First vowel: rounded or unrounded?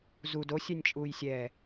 rounded